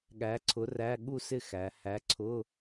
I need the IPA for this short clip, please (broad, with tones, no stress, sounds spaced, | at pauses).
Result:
ɠ æ˨˥ ǀʰ ʊ˨˥ r æ˧˥˧ ɠ u˥˨ s ɪ˥˨ x æ˩˧ h æ˨˥ ǀʰ ʊ˧˥˧